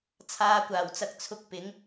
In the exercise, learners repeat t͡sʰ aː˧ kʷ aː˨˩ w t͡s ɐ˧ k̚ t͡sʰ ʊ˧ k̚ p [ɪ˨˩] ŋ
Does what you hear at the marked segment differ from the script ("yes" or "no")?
yes